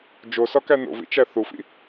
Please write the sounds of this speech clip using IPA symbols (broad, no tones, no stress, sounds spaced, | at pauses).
d͡ʒ o s ɒ k æ n o̰ v ḭ t͡ʃ æ θ u f ḭ